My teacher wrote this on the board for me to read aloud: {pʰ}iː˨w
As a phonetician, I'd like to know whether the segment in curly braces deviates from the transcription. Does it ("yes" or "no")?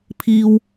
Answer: no